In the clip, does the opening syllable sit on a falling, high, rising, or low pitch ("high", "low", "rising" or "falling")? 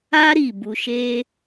high